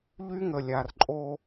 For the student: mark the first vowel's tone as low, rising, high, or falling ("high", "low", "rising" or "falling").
high